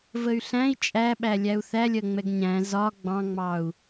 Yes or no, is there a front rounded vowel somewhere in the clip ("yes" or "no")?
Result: yes